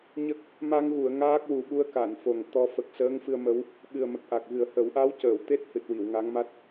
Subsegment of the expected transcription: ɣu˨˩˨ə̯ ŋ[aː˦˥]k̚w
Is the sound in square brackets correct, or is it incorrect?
correct